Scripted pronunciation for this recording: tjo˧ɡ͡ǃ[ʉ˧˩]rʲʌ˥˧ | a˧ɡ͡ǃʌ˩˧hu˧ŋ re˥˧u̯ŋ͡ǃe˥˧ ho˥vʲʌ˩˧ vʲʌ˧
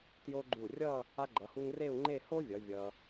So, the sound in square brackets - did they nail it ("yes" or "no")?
no